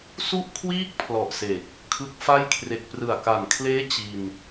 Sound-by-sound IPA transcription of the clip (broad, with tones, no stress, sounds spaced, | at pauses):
s u˥˩ ʔ kʰ w iː˥˩ k̚ pʰ l ɔ˨˩ ʔ s e˨˩ k̚ | kʰ ɯ˦˥ k̚ f a˥˩ j kʰ r e˨˩ k̚ p r ɯ˨˩ a̯ k a˨˩ n kʰ l eː˦˥ t͡ɕ i˧ n